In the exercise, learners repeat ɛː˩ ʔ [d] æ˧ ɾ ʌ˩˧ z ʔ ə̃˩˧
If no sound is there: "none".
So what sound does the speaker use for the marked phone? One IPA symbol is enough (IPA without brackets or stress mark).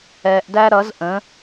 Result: d